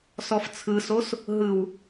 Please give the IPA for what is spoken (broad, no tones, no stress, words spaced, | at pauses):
sɔft͡sʰɯsos | ɦɯw